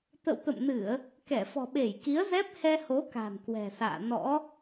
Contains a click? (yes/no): no